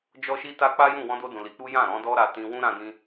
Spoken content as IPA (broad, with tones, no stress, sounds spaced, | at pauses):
d͡ʒ ɔ˦ ʃ i˦ t a˦ k͡p a˦ j ũ˦˨ w ɔ̃˧ d o˧ d ũ˨ l i˨˦ k͡p u˦ j ã˦˨ ɾ ɔ̃˨˦ d ɔ˦ ɾ a˧ t ĩ˧ w ũ˦ ɾ ã˦ d ĩ˦